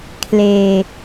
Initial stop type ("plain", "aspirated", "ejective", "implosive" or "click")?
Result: aspirated